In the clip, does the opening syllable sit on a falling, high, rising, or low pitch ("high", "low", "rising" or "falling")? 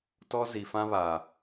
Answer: high